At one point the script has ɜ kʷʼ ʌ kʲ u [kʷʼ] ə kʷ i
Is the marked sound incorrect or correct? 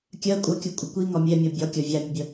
correct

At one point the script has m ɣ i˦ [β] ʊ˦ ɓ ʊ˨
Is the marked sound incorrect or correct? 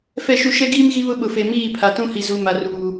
correct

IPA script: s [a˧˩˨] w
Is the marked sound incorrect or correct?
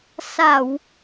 correct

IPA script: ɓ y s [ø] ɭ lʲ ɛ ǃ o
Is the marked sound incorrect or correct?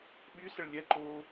incorrect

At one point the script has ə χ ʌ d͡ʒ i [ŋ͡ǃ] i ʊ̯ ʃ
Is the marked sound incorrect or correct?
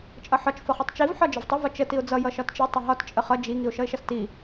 incorrect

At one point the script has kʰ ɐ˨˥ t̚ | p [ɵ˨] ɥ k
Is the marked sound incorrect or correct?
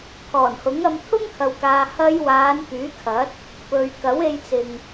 correct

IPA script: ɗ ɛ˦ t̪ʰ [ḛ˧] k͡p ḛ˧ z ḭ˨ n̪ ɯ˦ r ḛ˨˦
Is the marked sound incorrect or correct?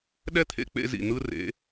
correct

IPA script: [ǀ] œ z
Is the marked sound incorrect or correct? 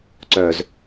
correct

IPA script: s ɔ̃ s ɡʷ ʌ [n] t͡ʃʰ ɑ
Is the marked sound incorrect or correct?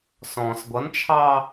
correct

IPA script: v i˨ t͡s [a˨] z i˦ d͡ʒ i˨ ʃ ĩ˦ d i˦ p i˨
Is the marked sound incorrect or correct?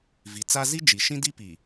incorrect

